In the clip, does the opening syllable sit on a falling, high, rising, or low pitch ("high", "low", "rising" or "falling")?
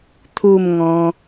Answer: falling